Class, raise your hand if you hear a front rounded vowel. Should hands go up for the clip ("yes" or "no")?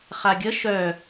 yes